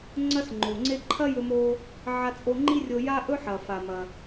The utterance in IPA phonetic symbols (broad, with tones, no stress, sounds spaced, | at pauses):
ŋ͡ǀ ɐ˥ s ŋ͡ǃ o˩ ŋ͡ǀ e˥ ǃʰ ɐ˥ j ɵ˧ m o˧ | ʕ a˧ t͡sʼ o˧ ŋ͡ǃ i˥ rʲ o˧ j a˥ ʔ ɵ˥ ħ ɐ˩ f a˩ m ɐ˩